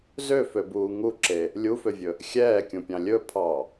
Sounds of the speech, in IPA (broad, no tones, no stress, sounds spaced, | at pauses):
z ø f ø b uː ŋ u ǁ e | lʲ u f ø vʲ ɵ | xʲ ɛː kʲ ũ pʲ ɑ̃ lʲ ɵ pʰ ɑ